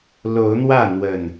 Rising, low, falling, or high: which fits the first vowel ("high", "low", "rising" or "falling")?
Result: rising